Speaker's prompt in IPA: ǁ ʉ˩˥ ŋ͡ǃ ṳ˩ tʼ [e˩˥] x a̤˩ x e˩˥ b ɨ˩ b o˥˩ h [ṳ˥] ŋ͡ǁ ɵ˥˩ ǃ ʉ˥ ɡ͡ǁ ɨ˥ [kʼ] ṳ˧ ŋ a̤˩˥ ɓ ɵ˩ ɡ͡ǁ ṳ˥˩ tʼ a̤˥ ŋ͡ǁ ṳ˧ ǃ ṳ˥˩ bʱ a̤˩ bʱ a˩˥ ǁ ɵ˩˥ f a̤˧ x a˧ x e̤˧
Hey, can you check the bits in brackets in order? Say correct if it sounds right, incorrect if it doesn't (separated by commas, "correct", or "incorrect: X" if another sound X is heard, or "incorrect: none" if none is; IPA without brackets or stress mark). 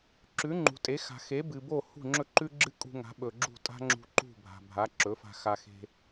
correct, incorrect: ṳ˥˩, correct